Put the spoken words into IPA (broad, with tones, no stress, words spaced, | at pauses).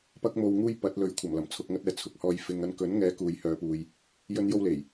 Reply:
pɐ˥k̚mo˧wŋuː˥j pɐ˨˥t̚lɵ˨˥ɥ kʷʰɐ˨˩mlɐ˨˩mt͡sʰʊ˨k̚ŋɐ˧t̚ ɛː˨ t͡sʰʊ˨k̚hɔː˧j fɪ˨ŋɐ˧n kɵ˨˥nŋɛː˨˧ kuː˨jhœː˨˧puː˨j | jɵ˥njo˥wle˨˩j